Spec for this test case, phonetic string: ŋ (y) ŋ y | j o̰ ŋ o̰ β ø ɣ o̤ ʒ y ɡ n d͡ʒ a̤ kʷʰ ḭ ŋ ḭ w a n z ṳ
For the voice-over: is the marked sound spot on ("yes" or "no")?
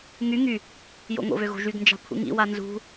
yes